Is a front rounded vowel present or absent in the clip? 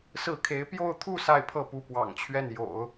absent